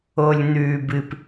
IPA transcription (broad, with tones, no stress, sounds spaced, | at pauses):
o˨ lʲ n̪ ʉː˨ b ɨ˨ p